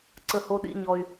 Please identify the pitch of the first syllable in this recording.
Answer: high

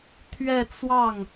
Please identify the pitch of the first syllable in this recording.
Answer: falling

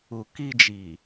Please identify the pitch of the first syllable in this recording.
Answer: low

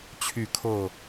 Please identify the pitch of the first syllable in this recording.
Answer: falling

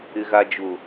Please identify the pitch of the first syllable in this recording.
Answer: low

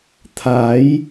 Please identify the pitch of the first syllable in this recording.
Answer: rising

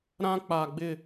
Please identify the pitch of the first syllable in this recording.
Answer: high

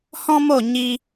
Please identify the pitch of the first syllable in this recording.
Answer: high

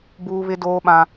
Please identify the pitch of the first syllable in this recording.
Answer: high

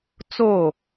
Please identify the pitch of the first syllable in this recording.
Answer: falling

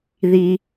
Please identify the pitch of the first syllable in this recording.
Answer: low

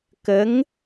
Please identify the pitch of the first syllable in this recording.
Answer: rising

